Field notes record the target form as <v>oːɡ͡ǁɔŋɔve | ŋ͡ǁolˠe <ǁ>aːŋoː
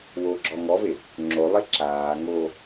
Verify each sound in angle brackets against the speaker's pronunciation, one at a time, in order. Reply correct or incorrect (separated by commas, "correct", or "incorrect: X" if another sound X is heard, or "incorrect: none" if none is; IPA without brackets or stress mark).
incorrect: w, correct